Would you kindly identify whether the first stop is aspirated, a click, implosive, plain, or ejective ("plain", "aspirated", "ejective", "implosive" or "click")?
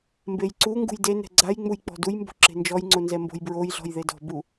plain